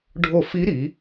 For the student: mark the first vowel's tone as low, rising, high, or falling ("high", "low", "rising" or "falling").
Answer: falling